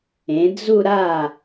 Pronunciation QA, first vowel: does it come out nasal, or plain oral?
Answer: nasal